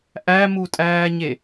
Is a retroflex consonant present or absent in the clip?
absent